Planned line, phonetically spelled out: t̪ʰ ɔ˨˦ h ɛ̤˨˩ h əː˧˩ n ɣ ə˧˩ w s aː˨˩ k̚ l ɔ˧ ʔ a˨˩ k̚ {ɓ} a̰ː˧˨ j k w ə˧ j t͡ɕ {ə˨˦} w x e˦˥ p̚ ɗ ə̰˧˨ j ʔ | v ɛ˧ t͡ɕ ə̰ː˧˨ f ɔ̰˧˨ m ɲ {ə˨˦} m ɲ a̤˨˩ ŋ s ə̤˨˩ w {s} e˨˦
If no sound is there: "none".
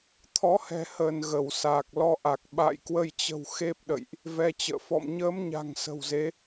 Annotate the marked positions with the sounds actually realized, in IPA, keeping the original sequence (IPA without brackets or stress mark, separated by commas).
ɓ, ə̤˨˩, əː˨˦, z